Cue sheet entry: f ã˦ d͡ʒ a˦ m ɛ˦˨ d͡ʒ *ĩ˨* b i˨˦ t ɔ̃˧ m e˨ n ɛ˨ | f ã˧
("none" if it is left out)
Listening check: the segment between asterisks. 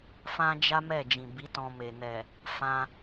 ĩ˨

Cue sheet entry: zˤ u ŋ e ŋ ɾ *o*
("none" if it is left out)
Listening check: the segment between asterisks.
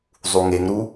u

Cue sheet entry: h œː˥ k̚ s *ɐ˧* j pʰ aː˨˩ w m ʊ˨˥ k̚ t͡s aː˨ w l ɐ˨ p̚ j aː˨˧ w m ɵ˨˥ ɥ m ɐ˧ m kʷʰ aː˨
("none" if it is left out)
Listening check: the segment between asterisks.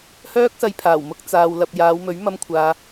ɐ˧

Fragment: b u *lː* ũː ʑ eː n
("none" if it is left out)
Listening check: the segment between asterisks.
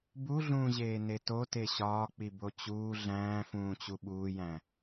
ɮ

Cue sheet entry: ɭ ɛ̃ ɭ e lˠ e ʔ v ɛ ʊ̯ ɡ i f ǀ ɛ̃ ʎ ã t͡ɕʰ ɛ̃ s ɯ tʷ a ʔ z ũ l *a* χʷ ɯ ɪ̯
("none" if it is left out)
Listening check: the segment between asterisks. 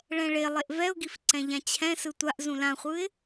ã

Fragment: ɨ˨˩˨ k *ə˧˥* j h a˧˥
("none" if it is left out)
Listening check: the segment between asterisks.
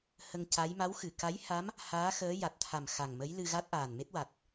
a˧˥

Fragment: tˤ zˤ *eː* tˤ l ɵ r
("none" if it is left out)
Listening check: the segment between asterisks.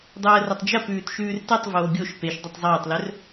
eː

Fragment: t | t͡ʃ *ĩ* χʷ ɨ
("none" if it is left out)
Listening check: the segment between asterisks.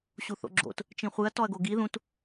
ĩ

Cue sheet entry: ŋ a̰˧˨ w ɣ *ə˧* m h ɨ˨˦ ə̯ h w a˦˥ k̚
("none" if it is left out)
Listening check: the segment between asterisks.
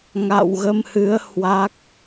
ə˧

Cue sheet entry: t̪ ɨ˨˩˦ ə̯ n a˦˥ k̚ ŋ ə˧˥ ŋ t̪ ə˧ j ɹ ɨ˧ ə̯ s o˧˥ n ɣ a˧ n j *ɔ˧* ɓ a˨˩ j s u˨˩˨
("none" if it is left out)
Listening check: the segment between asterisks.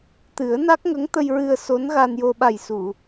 o˧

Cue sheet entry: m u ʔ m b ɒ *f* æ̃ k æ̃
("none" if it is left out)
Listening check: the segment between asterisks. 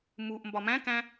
m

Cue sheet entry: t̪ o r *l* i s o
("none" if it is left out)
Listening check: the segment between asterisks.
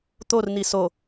n̪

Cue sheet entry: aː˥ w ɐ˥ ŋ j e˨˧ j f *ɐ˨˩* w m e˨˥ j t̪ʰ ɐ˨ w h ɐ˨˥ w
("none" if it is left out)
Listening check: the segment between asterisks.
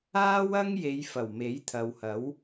ɐ˨˩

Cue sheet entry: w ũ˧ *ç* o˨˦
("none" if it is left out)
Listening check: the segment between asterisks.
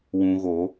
ɣ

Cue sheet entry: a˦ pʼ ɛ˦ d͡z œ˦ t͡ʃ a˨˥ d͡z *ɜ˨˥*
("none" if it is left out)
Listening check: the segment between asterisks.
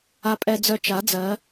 ɜ˨˥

